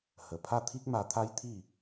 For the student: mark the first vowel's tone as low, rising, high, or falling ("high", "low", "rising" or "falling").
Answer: low